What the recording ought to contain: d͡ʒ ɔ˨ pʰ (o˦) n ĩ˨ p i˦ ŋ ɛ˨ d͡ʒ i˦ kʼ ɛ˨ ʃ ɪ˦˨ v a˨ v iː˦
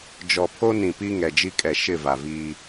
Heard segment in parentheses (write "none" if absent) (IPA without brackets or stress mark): o˦